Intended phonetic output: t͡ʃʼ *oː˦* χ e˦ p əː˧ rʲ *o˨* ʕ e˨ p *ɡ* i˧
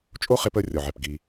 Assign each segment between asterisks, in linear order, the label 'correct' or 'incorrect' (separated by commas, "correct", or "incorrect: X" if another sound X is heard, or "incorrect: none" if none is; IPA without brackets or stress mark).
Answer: incorrect: o˦, incorrect: ɔ˨, correct